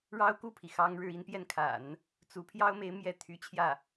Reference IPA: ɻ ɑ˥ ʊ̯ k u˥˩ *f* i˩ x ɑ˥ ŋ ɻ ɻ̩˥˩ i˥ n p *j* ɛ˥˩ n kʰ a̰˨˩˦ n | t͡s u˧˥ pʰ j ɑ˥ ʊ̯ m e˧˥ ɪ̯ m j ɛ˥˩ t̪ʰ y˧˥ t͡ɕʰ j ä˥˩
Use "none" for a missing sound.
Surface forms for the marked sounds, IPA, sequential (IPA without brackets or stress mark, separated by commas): pʰ, j